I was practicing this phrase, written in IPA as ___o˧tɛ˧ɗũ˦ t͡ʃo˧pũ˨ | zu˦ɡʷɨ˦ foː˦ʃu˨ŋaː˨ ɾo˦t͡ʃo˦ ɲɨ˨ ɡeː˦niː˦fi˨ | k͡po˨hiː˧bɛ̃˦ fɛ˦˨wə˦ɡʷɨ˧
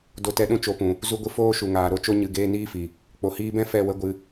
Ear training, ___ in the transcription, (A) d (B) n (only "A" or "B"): A